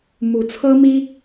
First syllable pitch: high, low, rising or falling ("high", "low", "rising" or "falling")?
rising